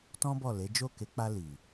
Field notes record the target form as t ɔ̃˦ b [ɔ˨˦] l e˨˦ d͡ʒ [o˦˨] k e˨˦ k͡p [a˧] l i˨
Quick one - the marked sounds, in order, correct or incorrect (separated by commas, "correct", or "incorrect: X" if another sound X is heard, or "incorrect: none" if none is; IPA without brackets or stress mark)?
incorrect: ɔ˦˨, correct, correct